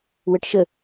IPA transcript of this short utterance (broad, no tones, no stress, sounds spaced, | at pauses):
w ə ʈ ʃ ə